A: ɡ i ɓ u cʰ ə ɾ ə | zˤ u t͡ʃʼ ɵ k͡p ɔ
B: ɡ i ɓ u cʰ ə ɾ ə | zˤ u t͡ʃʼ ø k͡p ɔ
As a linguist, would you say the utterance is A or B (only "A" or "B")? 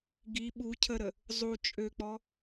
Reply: B